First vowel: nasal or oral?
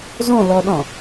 nasal